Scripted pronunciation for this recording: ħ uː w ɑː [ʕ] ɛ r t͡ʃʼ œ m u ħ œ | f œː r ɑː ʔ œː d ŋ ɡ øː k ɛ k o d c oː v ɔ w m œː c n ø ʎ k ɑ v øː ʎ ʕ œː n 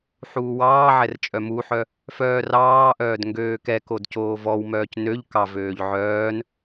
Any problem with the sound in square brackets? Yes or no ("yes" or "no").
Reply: no